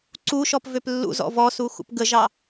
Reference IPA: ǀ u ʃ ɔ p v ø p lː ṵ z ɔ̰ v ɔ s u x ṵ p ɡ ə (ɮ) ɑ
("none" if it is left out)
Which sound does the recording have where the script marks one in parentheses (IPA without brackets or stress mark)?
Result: ʒ